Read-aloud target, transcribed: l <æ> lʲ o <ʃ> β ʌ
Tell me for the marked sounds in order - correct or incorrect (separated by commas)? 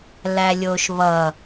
correct, correct